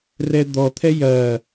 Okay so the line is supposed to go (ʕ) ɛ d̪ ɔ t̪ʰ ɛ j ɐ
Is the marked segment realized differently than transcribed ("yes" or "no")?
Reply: yes